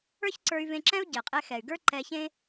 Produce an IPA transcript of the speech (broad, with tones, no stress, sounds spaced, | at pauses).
ə˞˥ ç ǀ ə˞˧ y̯ v ẽ˧ ǁ ɛ̃˥ u̯ ɟ ɛ˩ qʼ ɛ˧ x ɛ˩ y̯ ɡ ə˞˥ ǃ ɛ˧ ç ẽ˥